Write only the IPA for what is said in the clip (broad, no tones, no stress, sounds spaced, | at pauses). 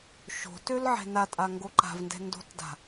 ʃ o̤ t ø l ʕ ɛ̤ n a tʼ a ŋ ɡ o ǃ a̤ v n d ɛ̤ n d o̤ t d a̤